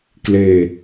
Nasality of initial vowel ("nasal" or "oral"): oral